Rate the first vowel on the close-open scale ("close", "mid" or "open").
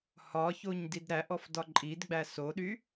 open